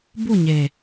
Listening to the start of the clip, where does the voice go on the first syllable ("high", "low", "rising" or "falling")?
falling